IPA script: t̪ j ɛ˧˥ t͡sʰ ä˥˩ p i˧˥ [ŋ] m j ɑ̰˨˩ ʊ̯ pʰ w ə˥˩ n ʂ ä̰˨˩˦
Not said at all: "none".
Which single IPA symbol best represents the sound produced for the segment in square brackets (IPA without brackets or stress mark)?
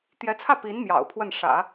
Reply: n